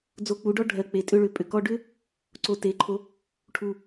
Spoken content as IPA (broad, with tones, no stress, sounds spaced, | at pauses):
d͡z o˧ k͡p u˨˦ ɖ ɔ˦ ɖʱ ɜ˨ k͡p e˨ tʼ ʏ˧ ɭ ʏ˨ pʼ ʏ˨ k ɔ˧ ɖ ʏ˦ | ǀ o˧ t e˨˦ ǃʰ o˧ | ʈʰ u˨